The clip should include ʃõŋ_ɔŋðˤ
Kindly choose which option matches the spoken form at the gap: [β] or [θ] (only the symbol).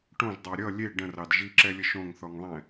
θ